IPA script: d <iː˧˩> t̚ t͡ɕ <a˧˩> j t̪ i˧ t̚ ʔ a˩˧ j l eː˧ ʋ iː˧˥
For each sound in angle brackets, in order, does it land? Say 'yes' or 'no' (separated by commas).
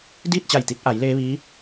no, yes